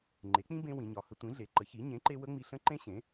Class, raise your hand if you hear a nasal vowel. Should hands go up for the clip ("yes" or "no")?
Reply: yes